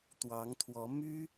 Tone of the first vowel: rising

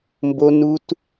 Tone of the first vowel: high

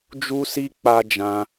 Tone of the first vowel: high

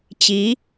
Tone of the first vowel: rising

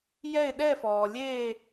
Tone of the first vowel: falling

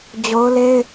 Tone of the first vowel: high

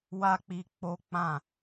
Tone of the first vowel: high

